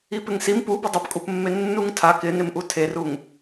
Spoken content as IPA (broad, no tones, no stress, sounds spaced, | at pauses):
i p ɪ ŋ s i m p u b ɪ dˤ i p kʼ u p mː e nː u ŋ tʰ a k ɪ n ɪ m ʔ u tʰ e r u ŋ